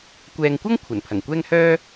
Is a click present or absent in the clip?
absent